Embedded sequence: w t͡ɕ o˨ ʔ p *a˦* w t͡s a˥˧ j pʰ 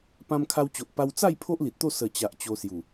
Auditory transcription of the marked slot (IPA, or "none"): a˧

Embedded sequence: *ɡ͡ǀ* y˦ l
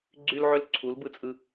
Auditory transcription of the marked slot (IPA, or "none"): ɡ͡ǀ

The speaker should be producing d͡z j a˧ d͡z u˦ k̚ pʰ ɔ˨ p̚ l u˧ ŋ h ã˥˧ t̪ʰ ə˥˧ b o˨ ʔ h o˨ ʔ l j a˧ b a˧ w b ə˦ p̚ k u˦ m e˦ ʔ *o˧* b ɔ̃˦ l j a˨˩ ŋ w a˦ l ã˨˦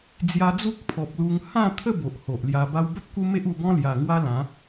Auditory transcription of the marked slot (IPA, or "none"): u˧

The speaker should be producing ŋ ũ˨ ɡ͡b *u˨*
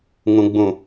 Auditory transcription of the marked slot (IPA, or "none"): ũ˨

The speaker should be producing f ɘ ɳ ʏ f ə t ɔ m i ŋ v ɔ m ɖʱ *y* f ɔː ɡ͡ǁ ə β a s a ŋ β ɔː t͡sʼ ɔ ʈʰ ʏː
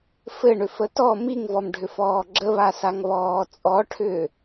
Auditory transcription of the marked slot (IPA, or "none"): ʏ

